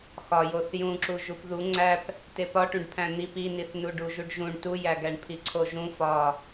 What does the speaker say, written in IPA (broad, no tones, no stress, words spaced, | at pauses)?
xɒjoθ jũǁu ʒupðu ŋ͡ǀæp | tepɒʈũɖ pʰæ̃n̪ip iniθ nuɖuʒuɖʒũɳ tujæɡæɳ pʰiǀʰoʒũ fɒ